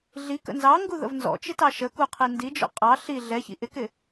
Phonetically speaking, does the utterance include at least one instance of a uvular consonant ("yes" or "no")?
yes